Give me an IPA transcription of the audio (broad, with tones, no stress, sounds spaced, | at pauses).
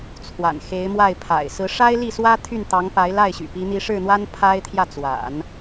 t͡sʰ w a̰˨˩ n x e˧˥ ɪ̯ m w a˥˩ ɪ̯ pʰ a̰˨˩ ɪ̯ s ɹ̩˧˥ ʂ a˥ ɪ̯ l i˥˩ s w ä˥ t̪ʰ y˥˩ n t̪ ɑ˧˥ ŋ p a˧˥ ɪ̯ l a˥˩ ɪ̯ ɕ y̰˨˩ p i˧˥ n̪ i˧˥ ʂ ɻ̩˥˩ n̪ w a˥ n pʰ a˥ ɪ̯ t̪ʰ j ä˥˩ t͡s w a̰˨˩˦ n